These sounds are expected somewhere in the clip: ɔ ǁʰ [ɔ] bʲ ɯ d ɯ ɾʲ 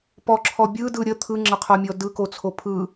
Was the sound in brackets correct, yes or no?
yes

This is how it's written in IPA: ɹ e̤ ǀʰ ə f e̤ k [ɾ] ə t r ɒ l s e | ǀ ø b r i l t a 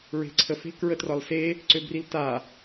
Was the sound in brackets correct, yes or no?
no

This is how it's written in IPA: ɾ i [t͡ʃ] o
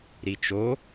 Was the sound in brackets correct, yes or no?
yes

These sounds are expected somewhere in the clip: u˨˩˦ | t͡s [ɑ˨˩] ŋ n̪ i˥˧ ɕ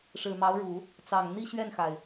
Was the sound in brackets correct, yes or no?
yes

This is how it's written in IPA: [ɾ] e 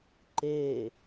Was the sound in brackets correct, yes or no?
no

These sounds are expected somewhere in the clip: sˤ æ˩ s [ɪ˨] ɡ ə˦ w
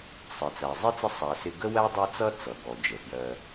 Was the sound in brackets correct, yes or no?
yes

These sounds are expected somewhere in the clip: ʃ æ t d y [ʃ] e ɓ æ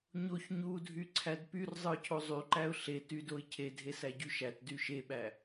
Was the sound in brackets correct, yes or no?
yes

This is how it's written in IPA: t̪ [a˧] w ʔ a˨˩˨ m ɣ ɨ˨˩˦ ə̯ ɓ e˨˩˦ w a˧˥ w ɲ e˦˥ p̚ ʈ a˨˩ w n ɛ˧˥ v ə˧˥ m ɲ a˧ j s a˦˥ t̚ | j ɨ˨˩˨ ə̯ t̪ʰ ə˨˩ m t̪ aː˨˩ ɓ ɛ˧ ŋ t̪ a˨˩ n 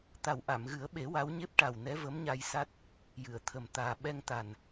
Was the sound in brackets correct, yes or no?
no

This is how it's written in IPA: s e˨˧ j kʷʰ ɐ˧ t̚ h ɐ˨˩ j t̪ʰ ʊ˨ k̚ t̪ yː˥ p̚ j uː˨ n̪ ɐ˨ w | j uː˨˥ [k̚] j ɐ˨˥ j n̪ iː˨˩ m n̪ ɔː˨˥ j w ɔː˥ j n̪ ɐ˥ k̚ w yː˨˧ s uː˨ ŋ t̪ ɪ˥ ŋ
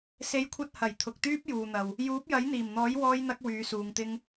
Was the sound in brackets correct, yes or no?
no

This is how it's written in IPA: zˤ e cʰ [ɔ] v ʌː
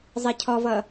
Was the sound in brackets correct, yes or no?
yes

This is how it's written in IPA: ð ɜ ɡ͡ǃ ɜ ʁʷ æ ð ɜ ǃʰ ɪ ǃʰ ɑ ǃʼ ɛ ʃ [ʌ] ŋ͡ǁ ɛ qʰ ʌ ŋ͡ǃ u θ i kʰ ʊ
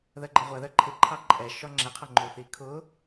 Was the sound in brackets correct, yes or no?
no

